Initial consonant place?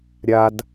alveolar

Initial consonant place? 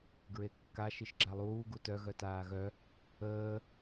velar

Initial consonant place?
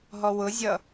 glottal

